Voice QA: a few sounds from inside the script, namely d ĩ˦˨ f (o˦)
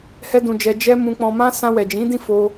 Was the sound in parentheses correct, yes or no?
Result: no